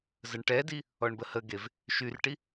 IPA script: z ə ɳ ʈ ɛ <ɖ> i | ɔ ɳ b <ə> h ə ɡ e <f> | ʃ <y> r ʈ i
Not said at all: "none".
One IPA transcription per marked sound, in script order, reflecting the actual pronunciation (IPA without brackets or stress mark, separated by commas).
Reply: d, ə, v, y